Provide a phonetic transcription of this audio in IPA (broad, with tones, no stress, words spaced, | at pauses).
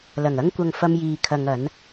lɐ˨˩ŋɐ˥ŋkʷɐ˧ŋ fɐ˥mjiː˧kʰɐ˧ŋ ɐ˨˥n